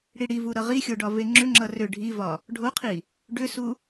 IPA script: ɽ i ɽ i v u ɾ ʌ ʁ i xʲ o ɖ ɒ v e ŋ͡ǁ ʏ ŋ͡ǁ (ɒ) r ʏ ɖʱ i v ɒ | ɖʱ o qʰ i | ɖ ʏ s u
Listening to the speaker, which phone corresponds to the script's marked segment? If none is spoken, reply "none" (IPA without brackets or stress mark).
ʌ